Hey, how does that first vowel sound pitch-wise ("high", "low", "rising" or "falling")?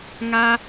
high